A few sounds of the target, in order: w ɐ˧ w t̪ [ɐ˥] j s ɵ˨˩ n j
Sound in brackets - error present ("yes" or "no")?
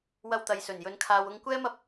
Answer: yes